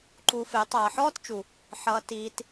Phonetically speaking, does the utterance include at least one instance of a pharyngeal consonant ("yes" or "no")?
yes